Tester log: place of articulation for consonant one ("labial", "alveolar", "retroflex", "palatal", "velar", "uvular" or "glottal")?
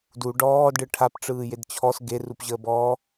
alveolar